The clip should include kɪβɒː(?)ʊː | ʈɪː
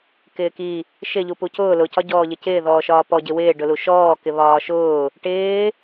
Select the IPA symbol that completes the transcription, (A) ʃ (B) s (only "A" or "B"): A